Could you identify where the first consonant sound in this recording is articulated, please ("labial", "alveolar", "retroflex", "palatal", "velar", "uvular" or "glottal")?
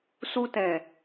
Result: alveolar